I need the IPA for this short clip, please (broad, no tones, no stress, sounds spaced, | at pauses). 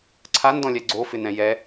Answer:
ǀʰ a n d ɔ̃ lʲ ɛ ɡ͡ǀ o f ɪ n ɛ̃ j ɛ